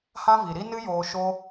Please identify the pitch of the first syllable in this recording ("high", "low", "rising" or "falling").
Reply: high